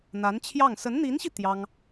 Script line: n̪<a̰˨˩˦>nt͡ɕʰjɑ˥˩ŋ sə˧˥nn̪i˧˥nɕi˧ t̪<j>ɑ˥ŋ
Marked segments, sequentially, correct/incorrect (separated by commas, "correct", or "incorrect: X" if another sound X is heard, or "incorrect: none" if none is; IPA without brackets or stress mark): incorrect: a˧˥, correct